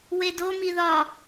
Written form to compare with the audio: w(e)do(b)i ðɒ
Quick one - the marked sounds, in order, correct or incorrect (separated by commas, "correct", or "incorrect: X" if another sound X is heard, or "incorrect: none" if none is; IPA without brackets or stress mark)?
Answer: correct, incorrect: m